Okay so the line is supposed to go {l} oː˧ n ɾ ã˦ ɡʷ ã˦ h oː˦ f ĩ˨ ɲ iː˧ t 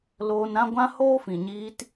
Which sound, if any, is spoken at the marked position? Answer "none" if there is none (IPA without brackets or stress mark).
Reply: l